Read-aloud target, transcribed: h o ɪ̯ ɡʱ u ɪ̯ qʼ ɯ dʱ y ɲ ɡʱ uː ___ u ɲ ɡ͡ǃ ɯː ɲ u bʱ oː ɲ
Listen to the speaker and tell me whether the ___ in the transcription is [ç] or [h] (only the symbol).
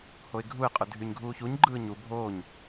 ç